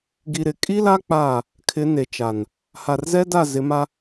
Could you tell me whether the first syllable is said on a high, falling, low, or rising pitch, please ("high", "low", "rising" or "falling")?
low